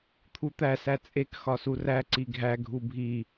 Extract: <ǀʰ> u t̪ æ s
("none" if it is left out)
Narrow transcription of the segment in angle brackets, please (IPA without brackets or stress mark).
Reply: t̪ʰ